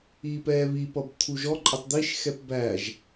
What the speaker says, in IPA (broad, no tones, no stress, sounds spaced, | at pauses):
iː p ɛː β i p ʌ b t̪ʰ u ʒ ɔ ǃʼ ə tˤ d̪ i ʃ x ɛ p b æ ʒ